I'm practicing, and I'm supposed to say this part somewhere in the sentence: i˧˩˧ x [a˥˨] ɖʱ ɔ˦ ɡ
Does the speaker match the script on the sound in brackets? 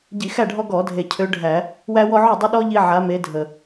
no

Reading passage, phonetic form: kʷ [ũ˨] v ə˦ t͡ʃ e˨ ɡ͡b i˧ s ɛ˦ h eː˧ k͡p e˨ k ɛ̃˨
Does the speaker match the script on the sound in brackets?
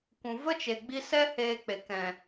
yes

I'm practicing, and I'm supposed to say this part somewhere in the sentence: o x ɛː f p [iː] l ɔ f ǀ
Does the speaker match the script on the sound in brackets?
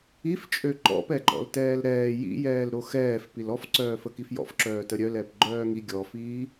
no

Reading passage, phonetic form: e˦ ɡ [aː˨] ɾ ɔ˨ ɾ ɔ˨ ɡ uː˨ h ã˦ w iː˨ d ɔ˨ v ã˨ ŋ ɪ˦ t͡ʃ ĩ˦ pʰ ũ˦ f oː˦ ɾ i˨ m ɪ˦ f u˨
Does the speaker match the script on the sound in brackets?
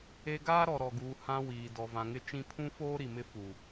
no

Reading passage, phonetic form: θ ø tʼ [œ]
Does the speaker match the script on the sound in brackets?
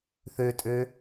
no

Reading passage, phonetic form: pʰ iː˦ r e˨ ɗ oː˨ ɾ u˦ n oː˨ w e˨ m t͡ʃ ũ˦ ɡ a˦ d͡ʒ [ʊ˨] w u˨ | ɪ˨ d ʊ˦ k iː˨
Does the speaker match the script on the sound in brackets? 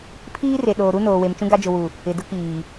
yes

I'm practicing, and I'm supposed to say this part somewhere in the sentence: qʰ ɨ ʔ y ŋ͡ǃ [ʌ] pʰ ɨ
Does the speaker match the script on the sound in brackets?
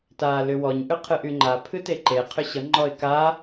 no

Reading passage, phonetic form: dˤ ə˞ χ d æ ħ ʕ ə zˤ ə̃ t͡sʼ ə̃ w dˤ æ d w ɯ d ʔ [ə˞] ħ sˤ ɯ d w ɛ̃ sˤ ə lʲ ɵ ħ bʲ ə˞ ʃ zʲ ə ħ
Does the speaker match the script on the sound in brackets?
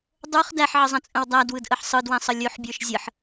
no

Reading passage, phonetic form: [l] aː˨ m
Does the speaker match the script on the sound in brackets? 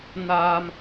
no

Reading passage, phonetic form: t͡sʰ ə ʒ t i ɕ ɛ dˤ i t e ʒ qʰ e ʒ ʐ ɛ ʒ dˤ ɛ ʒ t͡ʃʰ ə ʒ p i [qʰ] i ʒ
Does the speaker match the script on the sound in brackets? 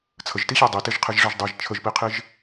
yes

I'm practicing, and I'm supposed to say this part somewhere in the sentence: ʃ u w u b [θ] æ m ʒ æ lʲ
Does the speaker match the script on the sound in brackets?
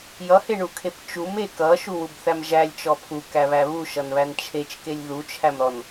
yes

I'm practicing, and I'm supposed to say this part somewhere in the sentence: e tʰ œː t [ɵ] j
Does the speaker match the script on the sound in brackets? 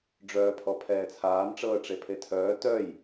no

